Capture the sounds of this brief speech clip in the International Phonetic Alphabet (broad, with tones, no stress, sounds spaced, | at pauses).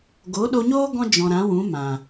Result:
ɡ o˨˦ ɗ o˧ ɲ oː˦ ɡ ɔ̃˦ d͡ʒ ɔ̃˨ ɾ ã˨˦ w ũ˨˦ m ã˨